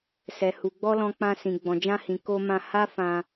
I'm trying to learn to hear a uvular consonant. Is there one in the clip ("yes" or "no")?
no